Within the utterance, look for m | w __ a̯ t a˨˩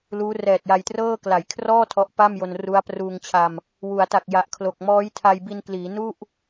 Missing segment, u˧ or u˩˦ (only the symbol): u˩˦